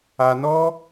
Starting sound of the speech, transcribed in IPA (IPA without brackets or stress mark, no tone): a